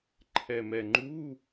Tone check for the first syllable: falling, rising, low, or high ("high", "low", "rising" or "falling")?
low